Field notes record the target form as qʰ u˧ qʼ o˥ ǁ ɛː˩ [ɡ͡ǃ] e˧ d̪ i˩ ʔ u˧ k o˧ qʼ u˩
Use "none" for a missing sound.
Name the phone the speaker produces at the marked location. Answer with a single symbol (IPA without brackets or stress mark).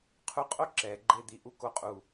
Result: ɡ͡ǃ